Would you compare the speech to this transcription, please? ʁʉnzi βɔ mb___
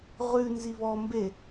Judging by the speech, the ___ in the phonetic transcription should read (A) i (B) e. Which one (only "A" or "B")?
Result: B